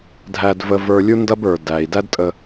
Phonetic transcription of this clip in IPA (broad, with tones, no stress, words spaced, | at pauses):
dʱæ˧dvə˧ və˞˧lʲu˥ ndɐ˥bə˞˩ dæ˩i̯ dæ˥dtʼə˧